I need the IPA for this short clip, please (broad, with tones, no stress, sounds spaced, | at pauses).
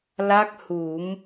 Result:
l a˦˥ k̚ h u˨˩˦ m